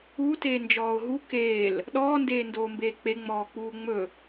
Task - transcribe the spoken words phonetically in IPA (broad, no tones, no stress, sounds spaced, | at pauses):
u t eː n d͡ʒ ɔː ʊ̯ ɦ u k eː l | ɗ ɔː n d eː n d oː m b eː k͡p e ŋ͡m ɔː k͡p uː ŋ͡m ɵ